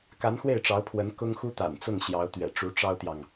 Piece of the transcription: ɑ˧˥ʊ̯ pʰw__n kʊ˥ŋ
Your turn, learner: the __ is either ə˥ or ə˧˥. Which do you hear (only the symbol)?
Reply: ə˧˥